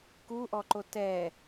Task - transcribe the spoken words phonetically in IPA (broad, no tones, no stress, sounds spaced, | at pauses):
k u ʔ ɔ ǃ o t ɛ